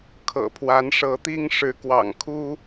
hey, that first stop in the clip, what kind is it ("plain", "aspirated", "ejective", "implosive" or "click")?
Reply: aspirated